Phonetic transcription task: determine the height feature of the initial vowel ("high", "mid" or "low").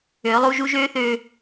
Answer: mid